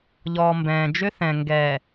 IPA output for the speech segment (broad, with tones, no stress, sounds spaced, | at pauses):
ʎ ɔː˨ m b ɛ̃ː˨ d͡ʒ ʏ˦ θ ɛ̃˨ ŋ ɡ ɛ˨